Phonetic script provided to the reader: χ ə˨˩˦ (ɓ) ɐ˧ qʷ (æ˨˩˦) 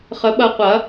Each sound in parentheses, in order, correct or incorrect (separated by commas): correct, incorrect